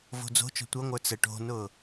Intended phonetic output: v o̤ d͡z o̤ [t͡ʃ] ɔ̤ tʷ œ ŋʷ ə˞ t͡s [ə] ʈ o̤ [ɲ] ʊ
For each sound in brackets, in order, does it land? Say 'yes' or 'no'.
yes, yes, no

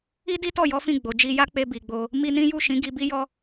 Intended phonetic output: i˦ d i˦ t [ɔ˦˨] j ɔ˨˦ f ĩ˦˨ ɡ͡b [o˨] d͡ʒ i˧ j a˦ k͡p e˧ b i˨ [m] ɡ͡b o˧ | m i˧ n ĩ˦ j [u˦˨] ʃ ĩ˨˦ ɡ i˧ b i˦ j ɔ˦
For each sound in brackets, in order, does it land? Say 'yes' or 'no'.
yes, yes, no, yes

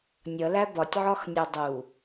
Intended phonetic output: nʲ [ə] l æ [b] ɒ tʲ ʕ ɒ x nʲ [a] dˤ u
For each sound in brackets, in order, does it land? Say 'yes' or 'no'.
no, yes, no

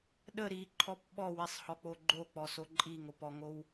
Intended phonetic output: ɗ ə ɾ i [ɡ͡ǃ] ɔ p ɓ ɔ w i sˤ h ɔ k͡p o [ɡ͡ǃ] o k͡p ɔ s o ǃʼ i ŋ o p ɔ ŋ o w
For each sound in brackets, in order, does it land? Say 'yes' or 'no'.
no, yes

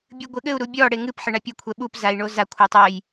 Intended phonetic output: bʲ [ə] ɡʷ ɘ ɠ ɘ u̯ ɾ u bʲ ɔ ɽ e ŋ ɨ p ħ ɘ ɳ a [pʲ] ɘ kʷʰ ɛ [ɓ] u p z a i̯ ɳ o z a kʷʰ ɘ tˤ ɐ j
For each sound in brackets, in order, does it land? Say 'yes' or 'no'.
no, yes, yes

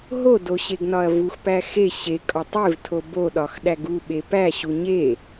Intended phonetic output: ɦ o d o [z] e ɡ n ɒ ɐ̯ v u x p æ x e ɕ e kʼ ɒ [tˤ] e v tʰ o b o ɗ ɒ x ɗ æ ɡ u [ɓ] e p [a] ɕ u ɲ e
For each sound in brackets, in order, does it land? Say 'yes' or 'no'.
no, yes, yes, no

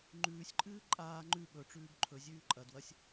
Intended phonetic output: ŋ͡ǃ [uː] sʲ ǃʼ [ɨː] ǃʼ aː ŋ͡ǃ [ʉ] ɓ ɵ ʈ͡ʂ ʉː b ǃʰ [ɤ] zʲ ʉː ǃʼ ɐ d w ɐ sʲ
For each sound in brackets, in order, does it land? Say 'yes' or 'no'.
no, yes, yes, no

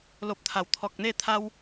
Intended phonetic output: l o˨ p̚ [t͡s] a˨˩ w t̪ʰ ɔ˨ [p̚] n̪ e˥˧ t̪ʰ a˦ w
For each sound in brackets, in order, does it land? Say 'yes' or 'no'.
no, no

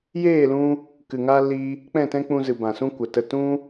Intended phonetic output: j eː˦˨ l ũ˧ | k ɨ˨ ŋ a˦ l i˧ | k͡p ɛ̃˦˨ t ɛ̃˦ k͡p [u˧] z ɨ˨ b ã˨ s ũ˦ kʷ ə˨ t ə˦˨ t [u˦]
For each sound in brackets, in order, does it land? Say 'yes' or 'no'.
no, no

